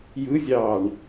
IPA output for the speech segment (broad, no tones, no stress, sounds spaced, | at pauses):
j ɯ zʲ ɑː ɳ